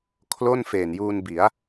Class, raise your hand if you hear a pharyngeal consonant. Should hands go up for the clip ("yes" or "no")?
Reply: no